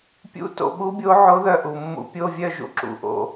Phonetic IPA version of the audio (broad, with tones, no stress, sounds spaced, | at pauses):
pʲ ṵ˧˥ t o̰˧ ɓ u˧˥ bʲ o˧˥ ʕ o˧˥ ð œ˧ ʔ u˩ mː ṵ˧˩˧ pʲ o˧˥˧ vʲ œ˥˧ ʒ ṵ˧ ǁ ṵ˩ ʔ o̰˧